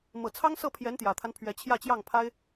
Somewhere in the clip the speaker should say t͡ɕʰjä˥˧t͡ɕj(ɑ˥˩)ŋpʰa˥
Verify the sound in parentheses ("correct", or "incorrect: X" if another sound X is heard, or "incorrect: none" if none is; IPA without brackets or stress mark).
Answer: correct